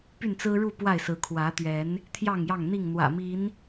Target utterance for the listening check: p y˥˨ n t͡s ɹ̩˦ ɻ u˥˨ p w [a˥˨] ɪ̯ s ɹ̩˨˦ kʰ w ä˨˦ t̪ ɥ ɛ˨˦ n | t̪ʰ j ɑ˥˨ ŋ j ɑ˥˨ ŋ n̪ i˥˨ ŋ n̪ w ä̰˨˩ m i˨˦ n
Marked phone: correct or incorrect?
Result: correct